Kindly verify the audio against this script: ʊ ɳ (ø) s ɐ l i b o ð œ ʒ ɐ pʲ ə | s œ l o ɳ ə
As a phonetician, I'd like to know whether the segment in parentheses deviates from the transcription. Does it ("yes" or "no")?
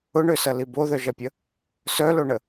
no